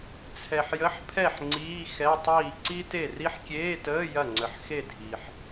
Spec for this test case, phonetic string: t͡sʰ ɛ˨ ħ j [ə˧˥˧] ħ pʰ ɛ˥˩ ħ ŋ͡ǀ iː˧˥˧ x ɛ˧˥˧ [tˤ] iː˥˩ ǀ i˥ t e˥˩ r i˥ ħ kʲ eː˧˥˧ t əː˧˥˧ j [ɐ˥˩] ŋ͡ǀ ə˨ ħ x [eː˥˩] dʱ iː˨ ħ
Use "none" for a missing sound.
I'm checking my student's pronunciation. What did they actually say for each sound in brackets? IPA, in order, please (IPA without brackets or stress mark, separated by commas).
ə˧˥˧, tˤ, ɐ˥˩, e˥˩